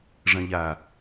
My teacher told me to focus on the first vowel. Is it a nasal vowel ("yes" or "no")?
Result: yes